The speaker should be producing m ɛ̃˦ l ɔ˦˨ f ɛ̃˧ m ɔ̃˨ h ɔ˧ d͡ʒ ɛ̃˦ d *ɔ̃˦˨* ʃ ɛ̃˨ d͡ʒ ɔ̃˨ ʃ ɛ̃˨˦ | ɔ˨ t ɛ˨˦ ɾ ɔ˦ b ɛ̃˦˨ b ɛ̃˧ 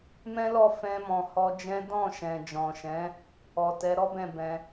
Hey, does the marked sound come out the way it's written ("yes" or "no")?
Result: yes